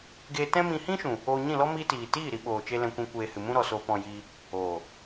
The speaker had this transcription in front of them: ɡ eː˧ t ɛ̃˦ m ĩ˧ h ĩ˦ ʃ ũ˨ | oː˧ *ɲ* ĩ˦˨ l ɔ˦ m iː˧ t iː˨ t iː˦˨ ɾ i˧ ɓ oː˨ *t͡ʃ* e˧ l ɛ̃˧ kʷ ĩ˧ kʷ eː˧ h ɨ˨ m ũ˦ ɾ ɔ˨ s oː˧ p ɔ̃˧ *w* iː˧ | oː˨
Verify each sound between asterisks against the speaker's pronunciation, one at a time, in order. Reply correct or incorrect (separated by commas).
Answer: correct, correct, incorrect